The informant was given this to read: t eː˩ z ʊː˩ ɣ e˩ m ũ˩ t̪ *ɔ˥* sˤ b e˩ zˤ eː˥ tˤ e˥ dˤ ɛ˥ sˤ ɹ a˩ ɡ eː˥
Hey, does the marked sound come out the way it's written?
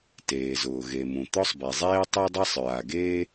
yes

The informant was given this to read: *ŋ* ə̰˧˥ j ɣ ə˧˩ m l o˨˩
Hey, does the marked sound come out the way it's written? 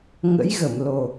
yes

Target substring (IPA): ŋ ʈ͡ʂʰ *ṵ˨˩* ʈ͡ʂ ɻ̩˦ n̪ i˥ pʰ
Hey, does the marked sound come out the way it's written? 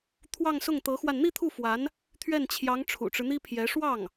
yes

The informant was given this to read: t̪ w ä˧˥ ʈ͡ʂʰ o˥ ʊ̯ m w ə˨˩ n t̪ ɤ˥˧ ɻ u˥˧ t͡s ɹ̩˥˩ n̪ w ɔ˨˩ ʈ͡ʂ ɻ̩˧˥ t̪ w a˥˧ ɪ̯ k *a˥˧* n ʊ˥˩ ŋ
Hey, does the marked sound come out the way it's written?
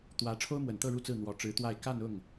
yes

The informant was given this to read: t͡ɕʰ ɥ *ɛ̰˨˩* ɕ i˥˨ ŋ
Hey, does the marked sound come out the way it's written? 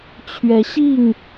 no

